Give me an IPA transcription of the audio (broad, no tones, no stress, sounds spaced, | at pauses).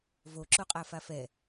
v o ǁ o qʼ a f a f ɛ